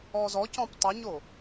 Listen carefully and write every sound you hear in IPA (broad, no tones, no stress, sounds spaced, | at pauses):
ɔ z ɔ c ɔ̃ p tˤ ɪ ɲ o